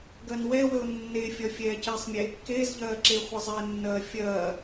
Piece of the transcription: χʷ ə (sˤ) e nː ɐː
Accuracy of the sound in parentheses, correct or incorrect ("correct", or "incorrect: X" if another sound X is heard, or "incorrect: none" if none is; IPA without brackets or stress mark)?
incorrect: zˤ